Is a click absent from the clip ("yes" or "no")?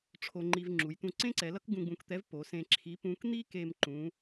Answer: no